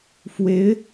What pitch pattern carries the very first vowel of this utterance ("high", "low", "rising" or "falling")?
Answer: rising